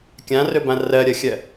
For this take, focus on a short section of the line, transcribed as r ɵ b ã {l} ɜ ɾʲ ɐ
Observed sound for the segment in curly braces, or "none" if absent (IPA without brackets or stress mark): r